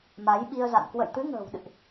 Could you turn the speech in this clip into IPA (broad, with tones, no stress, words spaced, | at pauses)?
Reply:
ma˨˦jɓi˧ə̯za̰˧˨n kwə̰˧˨jt̪ɨ˨˦ŋə̤ː˨˩wɗɨ̰˧˨ʔ